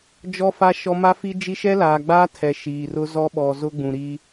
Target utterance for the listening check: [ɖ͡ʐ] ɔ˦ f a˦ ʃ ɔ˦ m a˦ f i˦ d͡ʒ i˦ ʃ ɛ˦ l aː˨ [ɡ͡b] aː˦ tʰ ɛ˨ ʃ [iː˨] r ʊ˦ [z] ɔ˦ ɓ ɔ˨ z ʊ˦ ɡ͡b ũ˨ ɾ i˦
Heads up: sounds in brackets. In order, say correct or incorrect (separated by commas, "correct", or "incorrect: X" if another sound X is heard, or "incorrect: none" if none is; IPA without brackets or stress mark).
incorrect: d͡ʒ, correct, correct, correct